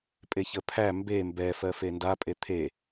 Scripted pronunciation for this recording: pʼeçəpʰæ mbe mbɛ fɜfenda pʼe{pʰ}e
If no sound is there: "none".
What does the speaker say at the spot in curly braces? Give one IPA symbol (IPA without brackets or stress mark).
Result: t̪ʰ